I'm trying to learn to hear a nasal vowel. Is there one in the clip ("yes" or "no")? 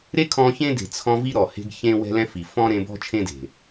yes